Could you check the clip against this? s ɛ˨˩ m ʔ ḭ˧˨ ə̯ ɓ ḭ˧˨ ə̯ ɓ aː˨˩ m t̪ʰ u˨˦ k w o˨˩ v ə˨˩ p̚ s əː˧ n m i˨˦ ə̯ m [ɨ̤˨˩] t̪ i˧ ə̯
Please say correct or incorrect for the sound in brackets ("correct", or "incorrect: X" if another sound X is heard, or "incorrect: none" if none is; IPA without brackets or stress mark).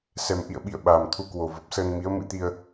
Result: incorrect: ɨ̰˧˥